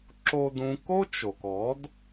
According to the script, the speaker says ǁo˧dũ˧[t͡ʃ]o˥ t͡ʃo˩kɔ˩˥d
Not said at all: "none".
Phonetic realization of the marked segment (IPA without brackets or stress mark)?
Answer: k